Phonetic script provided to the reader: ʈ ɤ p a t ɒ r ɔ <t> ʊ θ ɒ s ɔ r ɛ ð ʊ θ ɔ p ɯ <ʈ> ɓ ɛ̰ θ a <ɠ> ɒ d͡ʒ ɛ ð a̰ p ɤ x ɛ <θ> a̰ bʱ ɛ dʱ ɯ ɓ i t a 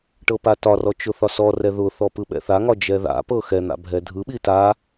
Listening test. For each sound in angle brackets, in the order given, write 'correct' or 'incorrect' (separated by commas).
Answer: incorrect, incorrect, incorrect, incorrect